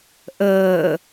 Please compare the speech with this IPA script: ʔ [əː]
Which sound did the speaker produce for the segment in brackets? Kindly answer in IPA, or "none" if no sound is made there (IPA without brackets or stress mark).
əː